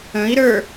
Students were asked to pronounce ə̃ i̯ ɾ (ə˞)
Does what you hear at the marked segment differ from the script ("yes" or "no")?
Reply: no